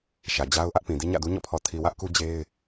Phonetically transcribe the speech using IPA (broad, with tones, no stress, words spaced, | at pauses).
ʃä˨d͡ʑa˦ʊ̯ʔä˦ʔpĩ˨ di˦ɲä̰˦˨du˦ ɲɔ̰˦˨pʰɔ˨tʰi˨wä˦ʔ ku˦d͡ʑe˦ɪ̯